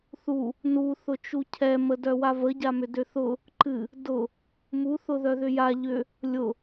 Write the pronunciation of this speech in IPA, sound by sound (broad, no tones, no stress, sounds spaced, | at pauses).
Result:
θ u | n u θ ʊ t͡ʃ u cʰ ɛ m ə d œ w a v ə ɟ a m ʏ d ʏ θ ʊ | ǃ ɨ | d ʊ | m u θ ʊ ð œ ð ʏ j a ʎ ʏ | lʲ ʊ